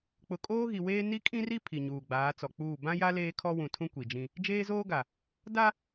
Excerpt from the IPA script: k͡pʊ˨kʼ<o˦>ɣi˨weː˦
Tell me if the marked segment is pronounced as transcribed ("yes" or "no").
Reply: no